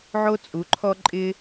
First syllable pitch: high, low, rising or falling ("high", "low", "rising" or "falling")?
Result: high